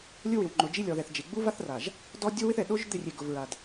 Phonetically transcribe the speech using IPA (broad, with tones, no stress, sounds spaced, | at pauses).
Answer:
lʲ ʊ˦ w ɪ˨ w ŋ͡ǃ ʊ˨ d͡ʒ i˦ lʲ ɔ˨ ð ɛ˨ θ d͡ʒ e˨ ɡ͡b u˦ v a˦ θ r a˨ ʒ | d ɔ˦ dʲ o˦ w ɪ˦ θ ɛ˨ ɗ o˦ ʒ d̪ ɪ˦˨ rʲ e˨ ɡ ʊ˨ v ɹ a˨ d